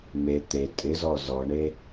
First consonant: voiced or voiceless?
voiced